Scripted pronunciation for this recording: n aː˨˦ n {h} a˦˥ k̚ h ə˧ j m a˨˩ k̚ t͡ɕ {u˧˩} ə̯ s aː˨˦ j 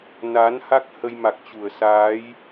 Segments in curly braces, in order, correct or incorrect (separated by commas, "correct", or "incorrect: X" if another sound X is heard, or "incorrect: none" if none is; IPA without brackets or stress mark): correct, correct